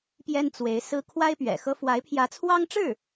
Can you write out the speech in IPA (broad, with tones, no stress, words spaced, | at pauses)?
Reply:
pjɛ˥nt͡swe˧˥ɪ̯sɹ̩˥ kʰwa˥ɪ̯pɥɛ̰˨˩xɤ˥ fwa˧˥ɪ̯pʰjä˧˥t͡sʰwɑ˥ŋʈ͡ʂɻ̩˥˩